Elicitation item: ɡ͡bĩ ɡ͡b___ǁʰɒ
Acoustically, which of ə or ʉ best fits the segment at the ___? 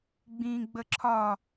ə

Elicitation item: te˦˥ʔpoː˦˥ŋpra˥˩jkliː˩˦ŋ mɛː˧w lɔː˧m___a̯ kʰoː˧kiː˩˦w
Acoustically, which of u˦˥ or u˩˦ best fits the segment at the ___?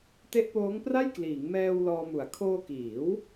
u˩˦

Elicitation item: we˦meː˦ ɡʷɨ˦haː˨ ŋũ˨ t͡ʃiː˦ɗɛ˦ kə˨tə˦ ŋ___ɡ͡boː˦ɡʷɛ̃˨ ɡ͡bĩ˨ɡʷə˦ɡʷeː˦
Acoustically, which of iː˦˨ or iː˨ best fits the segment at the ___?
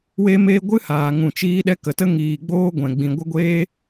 iː˨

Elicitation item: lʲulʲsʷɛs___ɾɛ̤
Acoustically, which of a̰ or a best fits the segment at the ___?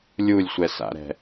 a̰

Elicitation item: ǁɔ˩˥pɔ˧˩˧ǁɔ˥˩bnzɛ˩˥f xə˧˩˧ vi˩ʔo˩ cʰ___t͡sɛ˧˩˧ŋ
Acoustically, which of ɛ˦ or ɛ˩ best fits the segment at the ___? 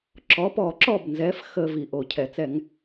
ɛ˩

